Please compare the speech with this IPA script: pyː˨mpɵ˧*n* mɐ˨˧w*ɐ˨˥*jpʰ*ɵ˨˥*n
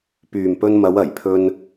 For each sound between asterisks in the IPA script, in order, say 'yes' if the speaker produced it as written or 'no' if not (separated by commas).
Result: yes, no, no